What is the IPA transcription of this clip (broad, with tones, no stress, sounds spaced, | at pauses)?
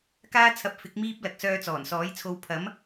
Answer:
k aː˥ t͡sʰ ɐ˧ p̚ f ɪ˨˥ k̚ m iː˥ p̚ l ɐ˨ k̚ s œː˧ t͡s ɔː˨˩ n s ɔː˨˥ j t͡sʰ o˧ w pʰ ɐ˨˥ m